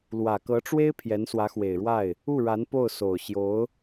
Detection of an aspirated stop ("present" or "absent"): present